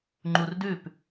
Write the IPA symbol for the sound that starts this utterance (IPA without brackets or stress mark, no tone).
ŋ͡ǃ